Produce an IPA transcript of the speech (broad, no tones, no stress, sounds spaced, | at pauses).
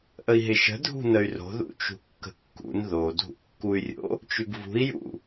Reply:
ʔ ə i̯ ɦ ɪ ʃ ə̤ dʱ ṳ n ə y̯ r o̤ ð ṵ t͡ʃ ṳ kː ə̤ kː ṵ n ð o dʱ ṵ kː u y̯ rʲ o̰ | t͡ʃ ʉ ɡ v ṳ i̯ j ṵ